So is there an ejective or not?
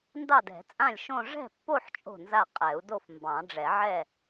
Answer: yes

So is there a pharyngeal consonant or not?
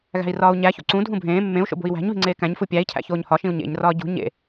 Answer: no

